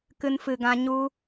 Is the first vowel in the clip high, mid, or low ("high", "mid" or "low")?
high